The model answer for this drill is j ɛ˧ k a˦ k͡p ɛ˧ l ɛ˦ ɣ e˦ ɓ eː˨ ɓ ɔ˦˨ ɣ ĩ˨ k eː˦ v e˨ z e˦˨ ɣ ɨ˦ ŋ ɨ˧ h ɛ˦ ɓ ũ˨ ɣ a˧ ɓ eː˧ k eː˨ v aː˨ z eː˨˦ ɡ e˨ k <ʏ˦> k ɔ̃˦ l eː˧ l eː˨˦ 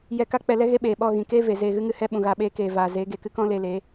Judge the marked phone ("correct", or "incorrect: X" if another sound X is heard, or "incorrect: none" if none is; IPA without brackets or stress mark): incorrect: ɨ˦